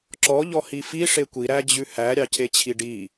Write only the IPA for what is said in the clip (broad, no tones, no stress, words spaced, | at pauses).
ǁɔ ʎɔhifi ʂekʷi ɾæd͡ʑʉhæ ɾʲɑcʰet͡ɕʰiɖi